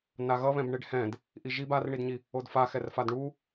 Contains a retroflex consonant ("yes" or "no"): yes